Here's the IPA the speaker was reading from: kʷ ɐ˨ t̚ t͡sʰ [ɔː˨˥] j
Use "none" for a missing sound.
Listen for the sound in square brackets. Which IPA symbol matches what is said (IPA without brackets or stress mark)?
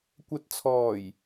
ɔː˨˩